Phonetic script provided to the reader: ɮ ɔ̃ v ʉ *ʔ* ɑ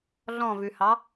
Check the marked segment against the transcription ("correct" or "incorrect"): incorrect